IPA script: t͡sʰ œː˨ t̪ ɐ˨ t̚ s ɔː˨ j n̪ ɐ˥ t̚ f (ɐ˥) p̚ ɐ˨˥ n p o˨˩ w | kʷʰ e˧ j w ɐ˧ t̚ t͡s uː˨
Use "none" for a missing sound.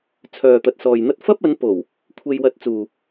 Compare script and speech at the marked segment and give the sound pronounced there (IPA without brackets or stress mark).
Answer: ɐ˥